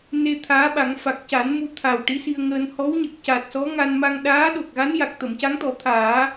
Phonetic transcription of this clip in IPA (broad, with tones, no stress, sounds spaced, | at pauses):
n e˧ t̪ʰ aː˧˥ ɓ a˨˩˦ ŋ f a˨˩ k̚ c a˨˩˦ n m u˧ t̪ʰ a˨˩ w ʈ i˧˥ s i˧ ə̯ ŋ əː˧ n h ɔ˧˥ w ɲ ə˨˩ k̚ c a˨˩ t̚ s ɔ˧˥ ŋ a˧ n m a˧ ŋ ɗ aː˧˥ ɗ o˨˩ k̚ ɣ a˧˥ n j a˨˩ k̚ t̪ ə˨˩˨ m c a˧˥ ŋ t̪ ɔ˨˩˦ t̪ʰ aː˨˩˦